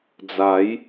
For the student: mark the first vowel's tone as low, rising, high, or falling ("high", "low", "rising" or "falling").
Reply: rising